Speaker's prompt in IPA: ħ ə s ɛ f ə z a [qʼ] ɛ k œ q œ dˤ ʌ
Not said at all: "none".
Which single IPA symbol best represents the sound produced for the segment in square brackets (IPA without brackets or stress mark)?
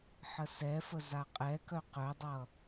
qʼ